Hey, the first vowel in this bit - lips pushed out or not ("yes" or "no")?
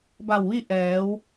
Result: no